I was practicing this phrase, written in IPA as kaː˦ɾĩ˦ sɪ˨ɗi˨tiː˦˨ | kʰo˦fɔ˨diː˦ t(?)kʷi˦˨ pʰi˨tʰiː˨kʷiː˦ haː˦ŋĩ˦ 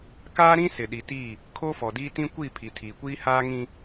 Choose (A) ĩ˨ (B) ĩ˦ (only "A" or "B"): B